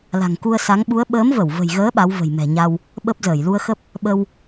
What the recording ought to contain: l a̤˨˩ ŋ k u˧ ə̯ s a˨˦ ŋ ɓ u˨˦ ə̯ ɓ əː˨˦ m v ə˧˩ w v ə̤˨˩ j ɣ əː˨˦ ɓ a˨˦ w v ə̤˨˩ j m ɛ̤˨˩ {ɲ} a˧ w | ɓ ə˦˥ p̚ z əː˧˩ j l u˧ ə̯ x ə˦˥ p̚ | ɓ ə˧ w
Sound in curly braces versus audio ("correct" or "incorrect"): correct